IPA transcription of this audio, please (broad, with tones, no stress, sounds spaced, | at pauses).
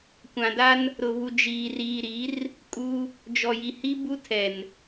kʷ ã˨ d a˦ n | ɾ ʊ˨ β u˨ d͡ʒ iː˨ r iː˨ ɾ i˨˦ r | kʼ uː˦ | d͡ʒ ɔ˨ j i˨ h i˦ b u˦ tʰ ɛ˨ n